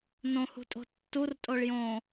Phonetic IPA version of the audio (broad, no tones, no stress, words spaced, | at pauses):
nõhṳtʼo̤ tːurtʼoɭ jõ